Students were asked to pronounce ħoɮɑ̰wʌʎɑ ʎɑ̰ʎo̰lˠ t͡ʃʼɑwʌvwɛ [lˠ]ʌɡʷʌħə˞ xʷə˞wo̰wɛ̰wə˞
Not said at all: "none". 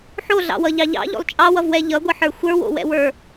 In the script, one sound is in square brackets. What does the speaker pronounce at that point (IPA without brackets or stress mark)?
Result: ʎ